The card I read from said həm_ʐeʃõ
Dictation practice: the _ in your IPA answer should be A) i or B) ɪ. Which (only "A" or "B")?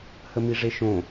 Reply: A